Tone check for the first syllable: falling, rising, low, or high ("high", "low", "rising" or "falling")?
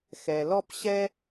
low